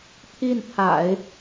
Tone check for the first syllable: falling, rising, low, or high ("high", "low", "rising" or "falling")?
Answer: falling